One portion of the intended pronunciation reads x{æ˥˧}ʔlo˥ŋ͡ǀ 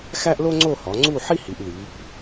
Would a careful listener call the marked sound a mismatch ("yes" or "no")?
yes